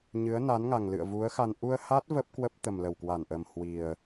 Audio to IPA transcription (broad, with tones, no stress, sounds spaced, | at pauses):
ɲ ɨ˨˦ ə̯ n a˨˦ n ŋ a˨˩ ŋ l ɨ̰˧˨ ə̯ v u˨˦ ə̯ x a˧ n ʔ u˧ ə̯ h a˦˥ t̚ v ə˦˥ p̚ k w ə˦˥ p̚ t̪ ə˨˩ m l ə˧˩ w k w a˧˩ n ʔ ə˨˩ m h w i˨˩ ə̯